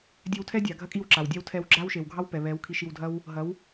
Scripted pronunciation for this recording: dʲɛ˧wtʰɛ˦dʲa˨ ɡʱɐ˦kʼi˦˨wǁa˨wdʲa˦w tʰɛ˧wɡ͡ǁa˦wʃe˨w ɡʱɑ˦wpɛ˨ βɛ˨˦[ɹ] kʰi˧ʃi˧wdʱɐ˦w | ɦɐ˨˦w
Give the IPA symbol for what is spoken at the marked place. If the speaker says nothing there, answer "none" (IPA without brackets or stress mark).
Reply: w